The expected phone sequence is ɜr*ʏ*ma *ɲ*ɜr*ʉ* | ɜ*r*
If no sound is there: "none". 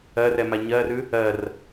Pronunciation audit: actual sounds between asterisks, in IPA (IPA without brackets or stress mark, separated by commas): ɛ, ɲ, ʉ, r